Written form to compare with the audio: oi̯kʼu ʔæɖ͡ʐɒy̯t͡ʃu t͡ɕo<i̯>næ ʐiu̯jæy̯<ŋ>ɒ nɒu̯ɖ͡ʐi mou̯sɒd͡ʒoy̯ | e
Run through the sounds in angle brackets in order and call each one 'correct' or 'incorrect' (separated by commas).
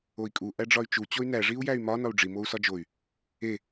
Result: incorrect, incorrect